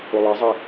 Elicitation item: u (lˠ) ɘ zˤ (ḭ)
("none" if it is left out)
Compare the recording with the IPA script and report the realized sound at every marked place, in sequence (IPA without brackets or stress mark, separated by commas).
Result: lˠ, i